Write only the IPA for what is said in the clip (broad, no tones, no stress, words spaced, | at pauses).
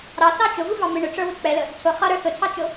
ɾɑθɑ t͡ʃʊvuvɑ mɪ ɳʊʈ͡ʂə˞wɪ k͡pɛlə | tʰʊ χʌɾə˞ θʊtʰɑt͡ʃʊ